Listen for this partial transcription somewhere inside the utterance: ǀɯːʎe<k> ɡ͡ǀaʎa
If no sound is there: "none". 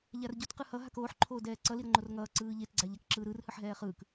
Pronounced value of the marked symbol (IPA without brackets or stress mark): t